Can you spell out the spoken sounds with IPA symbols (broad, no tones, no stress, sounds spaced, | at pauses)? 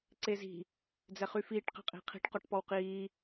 ǀ e z i̤ | d͡z ɛ χ y f iː ʈ q ɛ̤ qʼ i̤ qʰ i̤ ʈ q ɔ ʈ p ɔ w q iː